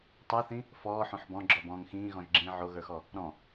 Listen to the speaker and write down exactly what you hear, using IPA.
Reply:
tˤ ə˞ θ ĩ | f ɔː ħ õ ħ b ɔ̃ ɡ͡ǁ ɔ b ɔ̃ː ŋ x ĩː ɣ ɔ̃ ʒ ɡ͡ǁ ĩː ʕ o ɣ ə˞ x ɔ | ɾ ɔ̃

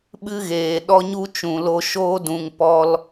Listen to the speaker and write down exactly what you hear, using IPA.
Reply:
ɓ ɨ˦ ɣ eː˨ ɗ ɔ˦ ɲ u˦ t͡ʃ ũ˨ l o˧ ʃ oː˦ d ũ˨ ŋ p ɔ˧ l

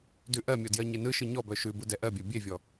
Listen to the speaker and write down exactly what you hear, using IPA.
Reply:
d ʉ ʔ ɜ mʲ ɔ d j ɜ ɲ e n ɯ ʃ ɯ ɲ ɔ b œ ʃ ʉ b ɯ d ɛ ʔ ɜ bʲ ɜ bʲ e vʲ ɔ

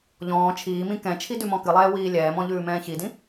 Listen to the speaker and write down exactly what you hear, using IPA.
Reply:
ʎ ɔ̃ː t͡ʃʰ iː m ĩ k ɛ̃ t͡ʃʰ i d ʉ m ɔ̃ k ɨ lˠ ɛː w iː lʲ ɛː m ɔ̃ ʎ ʉː m ɛ̃ː ç i d ĩ

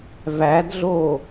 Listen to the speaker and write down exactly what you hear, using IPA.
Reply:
v æ d ɮ oː

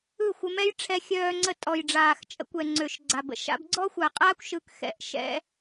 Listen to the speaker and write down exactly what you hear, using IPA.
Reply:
ɯ˦˨ xʷ ə˧ m ɛ˦ j ʈ͡ʂʰ ɛ˧ xʲ œː˧ ŋ͡ǀ ə˧ tʼ ɔ˨ j ɖ͡ʐ aː˨ x t͡ʃʼ ə̰˧ kʷ ɛ˨ ŋ͡ǀ ø˨ ʃ ɡ͡ǀ a˨ b ə̰˧ ʃ a̰˧ b ɡ͡ǀ ɔ˦ xʷ a˨ qʼ aː˦ kʷ ʃ ɯ˧ k x ɛ̰˧ ʔ ʃ ɛ̰˧

